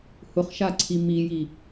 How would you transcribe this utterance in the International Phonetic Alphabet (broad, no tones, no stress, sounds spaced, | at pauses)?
h ʊ χ ʃ a ǀʰ i m i j i